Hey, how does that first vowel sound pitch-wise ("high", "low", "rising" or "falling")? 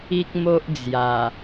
high